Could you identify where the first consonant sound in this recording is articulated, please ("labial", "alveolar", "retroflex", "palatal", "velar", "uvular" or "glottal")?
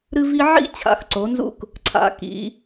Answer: alveolar